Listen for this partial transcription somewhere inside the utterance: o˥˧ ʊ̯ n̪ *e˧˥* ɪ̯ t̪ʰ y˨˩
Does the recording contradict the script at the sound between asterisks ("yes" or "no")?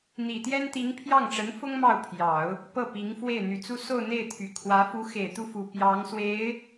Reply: yes